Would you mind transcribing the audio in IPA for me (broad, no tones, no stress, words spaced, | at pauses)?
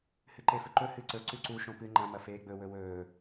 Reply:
hɨǃefɵǃɵ hɨǀɵ ǀʉǀu ʃõpɨ ŋ͡ǃɐ̃ mɐfeːɡ͡bɵ wɵwɵː